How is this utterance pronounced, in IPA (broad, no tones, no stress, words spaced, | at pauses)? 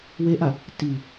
weʔa | ti